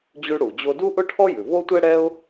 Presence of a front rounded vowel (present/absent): absent